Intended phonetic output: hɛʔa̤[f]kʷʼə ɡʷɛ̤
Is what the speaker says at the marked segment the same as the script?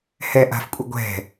yes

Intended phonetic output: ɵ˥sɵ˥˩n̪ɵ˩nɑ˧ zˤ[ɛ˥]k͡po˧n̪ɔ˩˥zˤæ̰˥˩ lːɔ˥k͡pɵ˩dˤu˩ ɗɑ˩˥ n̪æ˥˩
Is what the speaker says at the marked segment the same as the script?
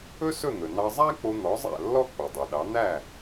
no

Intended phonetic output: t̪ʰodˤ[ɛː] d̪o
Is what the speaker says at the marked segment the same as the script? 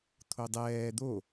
yes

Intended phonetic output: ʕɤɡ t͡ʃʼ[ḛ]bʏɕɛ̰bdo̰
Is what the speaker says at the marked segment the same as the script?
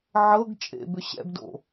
yes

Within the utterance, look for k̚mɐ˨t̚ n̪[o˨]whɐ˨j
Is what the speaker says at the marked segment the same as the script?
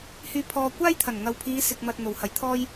no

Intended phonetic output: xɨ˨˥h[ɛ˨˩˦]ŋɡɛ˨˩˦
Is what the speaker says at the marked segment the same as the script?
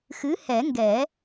yes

